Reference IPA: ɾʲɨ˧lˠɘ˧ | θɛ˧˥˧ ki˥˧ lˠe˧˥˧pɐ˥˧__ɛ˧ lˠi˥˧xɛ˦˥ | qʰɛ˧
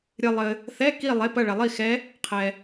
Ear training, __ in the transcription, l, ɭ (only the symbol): ɭ